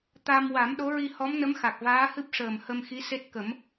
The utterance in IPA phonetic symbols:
t̪ a˧ m w a˨˩˦ m ɗ o˧˥ ɹ i˧ h ɔ˧˥ m n ə˧˥ m x a˨˩ k̚ v aː˧˥ h ɨ˦˥ p̚ ʂ əː˨˩ m h ə˧ m x i˧˥ s e˦˥ t̚ k ə˨˩˦ m

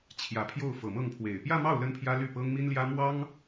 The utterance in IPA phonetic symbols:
t͡ɕʰ j ä˨˩ pʰ j o˥˩ ʊ̯ f ɤ˨˩ m ɤ˥˩ ŋ pʰ w e˨˩ ɪ̯ p j ä˥˧ m ɑ˥˩ ʊ̯ l ə˥ n pʰ j ä˥ l y˥˩ p ɤ˥ ŋ m i˥ n l j ä˥ m w ɑ˥ ŋ

